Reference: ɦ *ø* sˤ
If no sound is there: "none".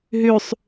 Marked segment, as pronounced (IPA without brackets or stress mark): ø